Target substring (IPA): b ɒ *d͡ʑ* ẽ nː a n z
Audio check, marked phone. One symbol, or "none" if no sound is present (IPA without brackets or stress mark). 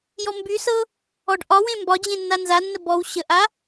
d͡ʑ